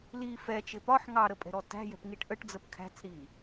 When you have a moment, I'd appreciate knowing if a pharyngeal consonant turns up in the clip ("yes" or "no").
yes